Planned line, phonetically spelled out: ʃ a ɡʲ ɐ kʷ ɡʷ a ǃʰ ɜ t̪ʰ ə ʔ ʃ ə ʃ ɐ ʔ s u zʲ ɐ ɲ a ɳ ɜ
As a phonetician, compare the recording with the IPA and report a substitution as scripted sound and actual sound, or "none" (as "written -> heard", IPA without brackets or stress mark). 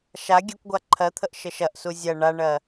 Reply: ɲ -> ɳ